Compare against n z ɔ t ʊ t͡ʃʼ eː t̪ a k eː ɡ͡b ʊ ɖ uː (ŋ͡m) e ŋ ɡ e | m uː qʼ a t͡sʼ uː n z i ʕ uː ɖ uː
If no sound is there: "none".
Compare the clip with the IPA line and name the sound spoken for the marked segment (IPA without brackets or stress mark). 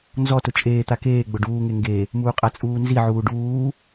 ŋ